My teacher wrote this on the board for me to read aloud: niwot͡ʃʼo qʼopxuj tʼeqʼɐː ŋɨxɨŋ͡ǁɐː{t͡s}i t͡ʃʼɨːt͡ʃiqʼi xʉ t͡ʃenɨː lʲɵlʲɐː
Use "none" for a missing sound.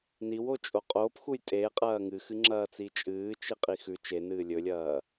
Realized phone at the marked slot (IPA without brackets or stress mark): t͡s